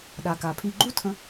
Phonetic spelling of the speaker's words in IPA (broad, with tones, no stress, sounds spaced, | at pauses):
ɗ a˨ k a˨ pʰ i˧ ɡ͡ǃ u˦ tʰ ə̃˧